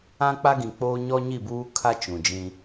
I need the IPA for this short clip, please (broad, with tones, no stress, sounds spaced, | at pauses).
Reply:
ã˦ k͡p a˦ ɡ ĩ˨ k͡p oː˦ ɲ ɔ˦ ɲ i˦˨ b uː˦ kʰ a˦ t͡ʃ ũ˨ d͡ʒ ĩ˦